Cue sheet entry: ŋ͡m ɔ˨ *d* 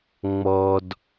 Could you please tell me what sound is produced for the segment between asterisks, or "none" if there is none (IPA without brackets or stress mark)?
d